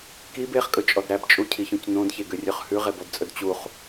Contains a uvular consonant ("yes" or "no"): yes